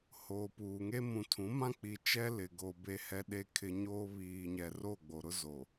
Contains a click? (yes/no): no